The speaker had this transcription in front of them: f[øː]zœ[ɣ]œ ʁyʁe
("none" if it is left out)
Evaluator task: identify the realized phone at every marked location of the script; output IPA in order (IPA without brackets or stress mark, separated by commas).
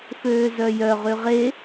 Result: øː, j